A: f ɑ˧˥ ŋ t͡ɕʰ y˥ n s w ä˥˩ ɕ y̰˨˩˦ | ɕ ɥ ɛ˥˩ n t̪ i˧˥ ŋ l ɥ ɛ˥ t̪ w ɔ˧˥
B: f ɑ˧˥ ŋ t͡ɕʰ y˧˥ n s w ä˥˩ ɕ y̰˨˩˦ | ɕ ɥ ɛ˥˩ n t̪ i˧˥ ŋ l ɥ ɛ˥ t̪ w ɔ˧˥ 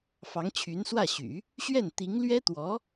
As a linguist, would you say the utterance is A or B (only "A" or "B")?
B